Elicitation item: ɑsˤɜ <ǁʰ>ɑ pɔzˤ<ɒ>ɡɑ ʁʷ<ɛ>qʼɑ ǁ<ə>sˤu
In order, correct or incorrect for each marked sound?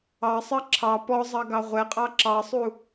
correct, incorrect, correct, incorrect

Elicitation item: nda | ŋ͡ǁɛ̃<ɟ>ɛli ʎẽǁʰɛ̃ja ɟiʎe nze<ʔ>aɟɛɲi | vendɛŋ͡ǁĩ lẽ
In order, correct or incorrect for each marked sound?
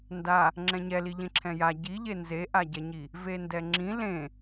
incorrect, correct

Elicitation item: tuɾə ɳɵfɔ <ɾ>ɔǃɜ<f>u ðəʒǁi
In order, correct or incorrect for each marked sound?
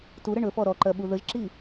correct, incorrect

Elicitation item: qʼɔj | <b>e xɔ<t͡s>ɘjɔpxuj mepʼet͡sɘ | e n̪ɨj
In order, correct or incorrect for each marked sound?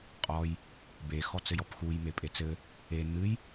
correct, correct

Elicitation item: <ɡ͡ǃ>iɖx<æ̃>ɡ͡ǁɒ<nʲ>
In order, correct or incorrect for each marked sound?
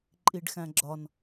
incorrect, correct, incorrect

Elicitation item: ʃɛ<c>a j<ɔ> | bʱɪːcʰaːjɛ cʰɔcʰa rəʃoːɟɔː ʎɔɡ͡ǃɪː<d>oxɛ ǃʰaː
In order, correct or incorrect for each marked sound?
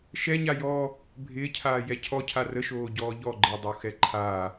incorrect, incorrect, incorrect

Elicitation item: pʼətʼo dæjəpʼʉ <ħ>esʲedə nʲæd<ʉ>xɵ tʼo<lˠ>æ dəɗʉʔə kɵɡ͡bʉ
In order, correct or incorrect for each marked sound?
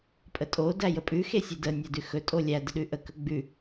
incorrect, correct, incorrect

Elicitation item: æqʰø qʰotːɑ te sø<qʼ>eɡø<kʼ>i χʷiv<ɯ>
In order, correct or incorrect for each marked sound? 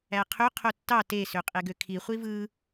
correct, incorrect, correct

